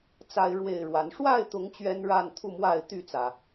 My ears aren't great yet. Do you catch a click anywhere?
no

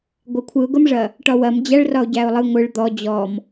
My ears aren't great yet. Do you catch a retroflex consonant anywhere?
yes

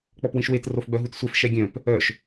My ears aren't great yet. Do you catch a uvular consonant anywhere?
no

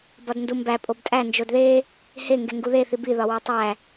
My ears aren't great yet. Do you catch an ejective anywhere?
yes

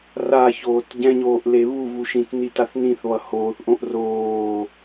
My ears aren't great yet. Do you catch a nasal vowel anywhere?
yes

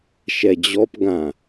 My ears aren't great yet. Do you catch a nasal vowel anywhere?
yes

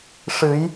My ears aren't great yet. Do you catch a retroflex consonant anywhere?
yes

